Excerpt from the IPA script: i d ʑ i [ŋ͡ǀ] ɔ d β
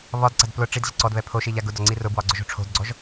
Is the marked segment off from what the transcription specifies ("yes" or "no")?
yes